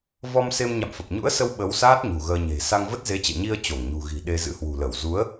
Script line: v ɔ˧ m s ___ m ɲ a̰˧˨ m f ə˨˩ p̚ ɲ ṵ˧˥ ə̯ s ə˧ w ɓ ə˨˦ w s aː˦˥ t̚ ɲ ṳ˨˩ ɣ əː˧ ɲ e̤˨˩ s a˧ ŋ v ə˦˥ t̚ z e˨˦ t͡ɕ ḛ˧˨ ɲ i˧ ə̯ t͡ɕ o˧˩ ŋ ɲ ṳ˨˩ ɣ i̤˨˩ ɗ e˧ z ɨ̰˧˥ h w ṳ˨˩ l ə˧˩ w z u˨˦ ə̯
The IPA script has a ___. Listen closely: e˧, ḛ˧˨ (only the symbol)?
e˧